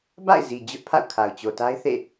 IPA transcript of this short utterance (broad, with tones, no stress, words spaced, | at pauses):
ba̰˦˨ɪ̯zi˨ d͡ʑʊ˦ʔpʰa̰˦˨ʊ̯kʰa˨ʊ̯ t͡ɕo˨ta˦ɪ̯θḛ˦˨